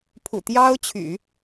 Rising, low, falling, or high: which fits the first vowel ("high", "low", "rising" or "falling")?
low